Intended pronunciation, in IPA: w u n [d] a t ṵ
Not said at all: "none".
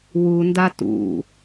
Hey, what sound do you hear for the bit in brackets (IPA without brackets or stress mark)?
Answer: d